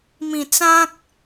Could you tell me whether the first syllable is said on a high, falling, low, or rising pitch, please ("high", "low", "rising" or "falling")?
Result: low